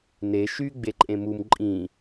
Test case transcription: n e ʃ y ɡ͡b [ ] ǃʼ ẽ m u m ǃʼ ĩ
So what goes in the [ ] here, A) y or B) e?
B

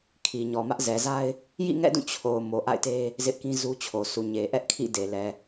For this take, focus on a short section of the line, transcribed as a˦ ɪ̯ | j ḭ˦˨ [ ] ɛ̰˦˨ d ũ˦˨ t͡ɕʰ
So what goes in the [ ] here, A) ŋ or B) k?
A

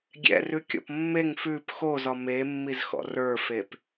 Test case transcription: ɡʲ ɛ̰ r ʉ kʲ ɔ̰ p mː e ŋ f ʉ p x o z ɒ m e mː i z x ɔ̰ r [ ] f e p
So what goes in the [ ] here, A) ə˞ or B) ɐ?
A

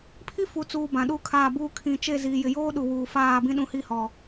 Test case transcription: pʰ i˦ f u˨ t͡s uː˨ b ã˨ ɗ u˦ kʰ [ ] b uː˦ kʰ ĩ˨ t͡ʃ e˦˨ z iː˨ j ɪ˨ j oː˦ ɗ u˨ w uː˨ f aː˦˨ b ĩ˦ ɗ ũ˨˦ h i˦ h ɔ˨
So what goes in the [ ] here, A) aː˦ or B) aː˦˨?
B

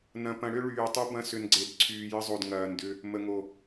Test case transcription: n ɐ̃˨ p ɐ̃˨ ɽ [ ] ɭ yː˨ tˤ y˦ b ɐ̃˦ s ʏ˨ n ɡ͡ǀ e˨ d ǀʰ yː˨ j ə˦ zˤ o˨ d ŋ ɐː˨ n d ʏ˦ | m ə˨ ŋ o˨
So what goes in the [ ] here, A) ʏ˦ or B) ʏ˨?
A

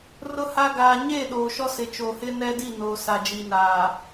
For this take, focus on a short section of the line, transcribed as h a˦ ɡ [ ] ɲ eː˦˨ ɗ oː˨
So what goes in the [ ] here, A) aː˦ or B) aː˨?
B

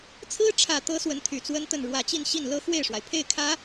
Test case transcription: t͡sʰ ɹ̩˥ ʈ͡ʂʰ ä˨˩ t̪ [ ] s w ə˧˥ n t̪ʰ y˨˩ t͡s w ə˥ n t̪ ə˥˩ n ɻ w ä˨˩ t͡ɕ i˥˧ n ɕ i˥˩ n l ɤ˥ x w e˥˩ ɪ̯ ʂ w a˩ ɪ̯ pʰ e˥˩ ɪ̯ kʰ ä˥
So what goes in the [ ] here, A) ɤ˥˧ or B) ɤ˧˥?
B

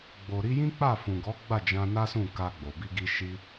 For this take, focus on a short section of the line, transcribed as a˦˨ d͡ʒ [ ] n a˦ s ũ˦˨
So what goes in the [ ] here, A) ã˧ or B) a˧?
A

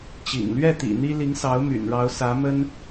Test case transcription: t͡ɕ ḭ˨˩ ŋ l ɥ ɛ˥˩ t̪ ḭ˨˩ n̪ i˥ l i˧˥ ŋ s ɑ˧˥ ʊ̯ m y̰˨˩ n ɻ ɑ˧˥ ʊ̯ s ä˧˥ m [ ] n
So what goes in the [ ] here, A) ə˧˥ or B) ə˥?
B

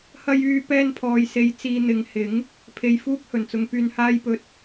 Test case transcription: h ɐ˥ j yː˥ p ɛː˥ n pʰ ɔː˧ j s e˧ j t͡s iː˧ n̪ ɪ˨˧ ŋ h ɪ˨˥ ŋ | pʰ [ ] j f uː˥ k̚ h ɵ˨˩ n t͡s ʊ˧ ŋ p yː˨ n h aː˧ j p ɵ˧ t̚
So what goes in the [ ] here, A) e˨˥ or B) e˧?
B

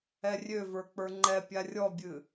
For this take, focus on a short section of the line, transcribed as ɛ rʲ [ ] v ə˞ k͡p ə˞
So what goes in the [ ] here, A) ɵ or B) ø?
B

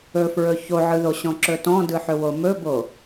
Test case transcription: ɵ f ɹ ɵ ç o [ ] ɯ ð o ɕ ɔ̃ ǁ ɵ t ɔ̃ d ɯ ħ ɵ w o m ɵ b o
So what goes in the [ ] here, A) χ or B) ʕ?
B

